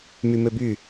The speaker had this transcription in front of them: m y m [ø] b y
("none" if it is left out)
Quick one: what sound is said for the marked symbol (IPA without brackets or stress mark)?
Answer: ø